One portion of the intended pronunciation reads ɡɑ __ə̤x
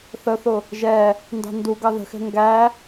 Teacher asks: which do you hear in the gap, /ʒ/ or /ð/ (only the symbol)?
ð